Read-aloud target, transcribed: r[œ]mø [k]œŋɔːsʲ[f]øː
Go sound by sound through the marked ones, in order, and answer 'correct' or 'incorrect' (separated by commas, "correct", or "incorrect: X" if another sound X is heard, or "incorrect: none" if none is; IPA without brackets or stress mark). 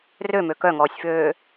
incorrect: ø, correct, correct